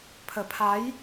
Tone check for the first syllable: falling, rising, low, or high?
low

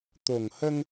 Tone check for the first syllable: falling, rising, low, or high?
low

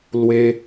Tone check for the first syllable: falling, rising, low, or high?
high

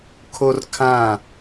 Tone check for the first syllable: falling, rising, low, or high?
high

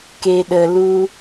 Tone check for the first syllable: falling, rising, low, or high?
low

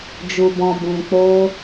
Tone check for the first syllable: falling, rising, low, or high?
low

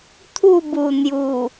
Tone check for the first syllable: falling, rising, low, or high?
falling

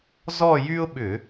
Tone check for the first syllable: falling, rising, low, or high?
falling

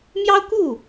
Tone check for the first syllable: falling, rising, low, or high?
high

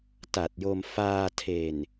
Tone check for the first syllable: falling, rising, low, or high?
low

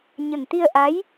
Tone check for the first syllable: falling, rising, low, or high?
low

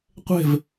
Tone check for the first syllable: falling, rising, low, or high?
falling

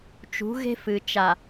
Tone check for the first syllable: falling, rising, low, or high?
rising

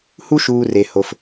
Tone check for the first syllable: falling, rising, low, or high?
high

